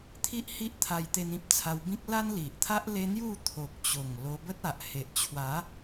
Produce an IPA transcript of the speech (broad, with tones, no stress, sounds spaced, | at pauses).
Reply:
t̪ʰ i˦ ʔ h i˦ ʔ t̪ʰ a˧ j t̪ e˧ n ĩ˦ p̚ t͡sʰ a˧ w b ĩ˦ k̚ l a˦ n l i˨ ʔ t̪ʰ a˦ ʔ l e˧ n̪ j u˥˧ t̪ʰ o˨ k̚ t͡ɕ o˨˩ ŋ l o˧ b ə˦ t̚ a˨ ʔ h e˨ ʔ t͡ɕʰ w a˨˦